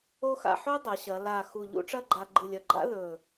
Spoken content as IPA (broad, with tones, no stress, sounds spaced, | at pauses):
o˥ x a̰˥˧ ħ o˥ dˤ ɐ˩˧ ɕ ɐ˩˧ l a˧˩ x u˧˩ ʎ ṵ˥ ʈ͡ʂ ɐ˥˧ ɡ͡ǃ a˧ ɡ͡ǃ ɨ˧˩ lʲ ɐ˧˩ ɡ͡ǃ a̰˥ ð ɵ˧˩